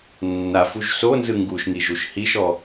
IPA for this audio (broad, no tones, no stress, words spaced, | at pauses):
nːafuʒ sonzɯ ŋɡuʃŋi ʒuʃhiʃɔ